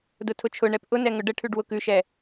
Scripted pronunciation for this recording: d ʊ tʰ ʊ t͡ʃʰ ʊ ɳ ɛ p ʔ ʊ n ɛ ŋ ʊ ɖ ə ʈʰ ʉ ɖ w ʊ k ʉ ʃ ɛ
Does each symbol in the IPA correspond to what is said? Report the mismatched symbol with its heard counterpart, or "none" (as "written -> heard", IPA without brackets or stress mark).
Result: none